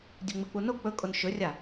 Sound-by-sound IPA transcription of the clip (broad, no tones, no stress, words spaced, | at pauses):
dʲɵŋ͡mɨk͡puno k͡pɵkʼon ʃɵrʲa